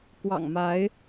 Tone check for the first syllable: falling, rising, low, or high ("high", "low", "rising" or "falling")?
low